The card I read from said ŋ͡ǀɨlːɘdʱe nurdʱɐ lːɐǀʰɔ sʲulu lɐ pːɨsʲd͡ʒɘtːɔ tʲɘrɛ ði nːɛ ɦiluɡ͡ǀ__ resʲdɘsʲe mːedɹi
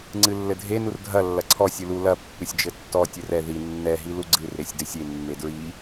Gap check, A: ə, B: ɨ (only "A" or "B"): B